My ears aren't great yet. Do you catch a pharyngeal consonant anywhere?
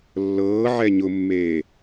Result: yes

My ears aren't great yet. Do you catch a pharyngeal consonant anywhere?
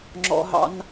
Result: no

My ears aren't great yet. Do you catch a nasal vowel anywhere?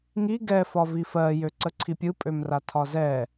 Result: no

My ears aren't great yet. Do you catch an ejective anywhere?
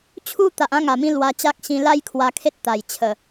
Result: no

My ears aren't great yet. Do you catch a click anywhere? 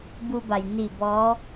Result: no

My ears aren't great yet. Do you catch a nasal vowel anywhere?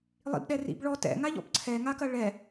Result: no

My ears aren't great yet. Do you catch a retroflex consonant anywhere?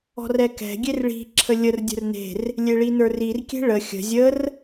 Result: yes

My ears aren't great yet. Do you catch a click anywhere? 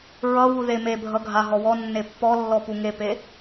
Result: no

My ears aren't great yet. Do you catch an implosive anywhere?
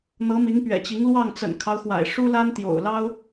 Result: no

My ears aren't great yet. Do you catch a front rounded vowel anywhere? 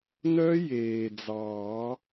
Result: yes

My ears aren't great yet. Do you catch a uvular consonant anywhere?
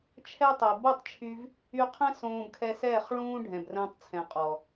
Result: yes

